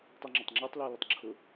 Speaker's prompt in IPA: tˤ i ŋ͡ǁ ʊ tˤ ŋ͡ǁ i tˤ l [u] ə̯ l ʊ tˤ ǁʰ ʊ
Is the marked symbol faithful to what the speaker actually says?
yes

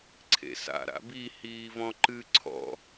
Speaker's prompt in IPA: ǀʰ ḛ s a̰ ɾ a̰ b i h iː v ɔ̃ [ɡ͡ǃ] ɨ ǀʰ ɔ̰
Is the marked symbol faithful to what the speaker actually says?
no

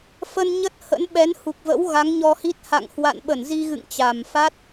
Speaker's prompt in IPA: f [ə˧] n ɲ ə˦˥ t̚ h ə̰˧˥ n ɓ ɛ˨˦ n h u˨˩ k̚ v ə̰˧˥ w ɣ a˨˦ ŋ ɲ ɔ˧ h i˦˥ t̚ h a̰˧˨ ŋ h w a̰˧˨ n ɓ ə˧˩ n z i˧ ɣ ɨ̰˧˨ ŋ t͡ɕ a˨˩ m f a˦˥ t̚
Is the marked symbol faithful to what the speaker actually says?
yes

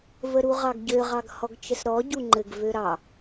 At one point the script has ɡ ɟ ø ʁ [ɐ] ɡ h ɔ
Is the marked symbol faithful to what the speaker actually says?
no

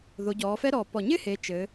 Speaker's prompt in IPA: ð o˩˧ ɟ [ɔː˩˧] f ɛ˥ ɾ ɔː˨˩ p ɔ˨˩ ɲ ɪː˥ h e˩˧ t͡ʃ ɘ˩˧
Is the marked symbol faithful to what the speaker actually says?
yes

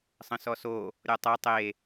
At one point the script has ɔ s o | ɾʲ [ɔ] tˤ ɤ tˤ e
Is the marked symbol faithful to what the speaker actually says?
yes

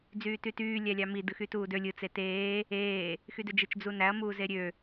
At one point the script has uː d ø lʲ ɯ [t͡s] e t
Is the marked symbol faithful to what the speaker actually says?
yes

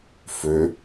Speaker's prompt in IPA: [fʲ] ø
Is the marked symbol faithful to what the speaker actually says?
no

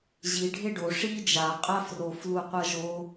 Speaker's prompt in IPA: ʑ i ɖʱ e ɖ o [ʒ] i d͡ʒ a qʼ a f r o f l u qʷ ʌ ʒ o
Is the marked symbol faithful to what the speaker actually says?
no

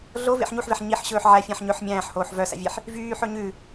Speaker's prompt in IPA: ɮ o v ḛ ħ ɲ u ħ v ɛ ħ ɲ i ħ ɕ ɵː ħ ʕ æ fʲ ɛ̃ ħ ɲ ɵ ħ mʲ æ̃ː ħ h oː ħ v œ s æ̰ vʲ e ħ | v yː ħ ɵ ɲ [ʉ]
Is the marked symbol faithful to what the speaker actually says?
yes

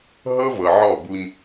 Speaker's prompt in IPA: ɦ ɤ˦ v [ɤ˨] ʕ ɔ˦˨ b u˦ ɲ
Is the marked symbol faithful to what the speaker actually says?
yes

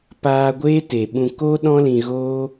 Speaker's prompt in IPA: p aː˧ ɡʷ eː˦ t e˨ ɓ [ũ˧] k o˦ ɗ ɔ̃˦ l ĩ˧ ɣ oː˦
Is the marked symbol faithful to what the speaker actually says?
yes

